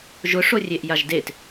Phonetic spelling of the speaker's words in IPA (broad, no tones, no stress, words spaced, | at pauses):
ʒʊʂo rʲeʔjaʒdet